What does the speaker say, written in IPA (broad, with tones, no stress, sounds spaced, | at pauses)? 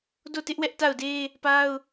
d o˦˨ t ɪ˦ ʔ w ɛ˦ ʔ t a˦˨ ʊ̯ d e˦ | p a˦ ʊ̯